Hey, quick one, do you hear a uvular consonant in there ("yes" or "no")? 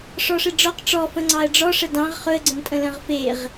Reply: yes